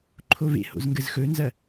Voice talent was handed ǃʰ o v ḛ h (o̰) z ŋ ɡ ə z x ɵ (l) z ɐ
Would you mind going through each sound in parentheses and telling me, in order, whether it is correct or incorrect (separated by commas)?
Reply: correct, incorrect